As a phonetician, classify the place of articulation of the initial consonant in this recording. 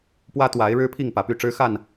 labial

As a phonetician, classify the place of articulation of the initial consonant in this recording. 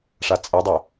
retroflex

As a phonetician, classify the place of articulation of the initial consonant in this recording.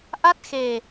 glottal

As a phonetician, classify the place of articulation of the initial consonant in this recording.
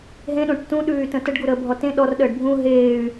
glottal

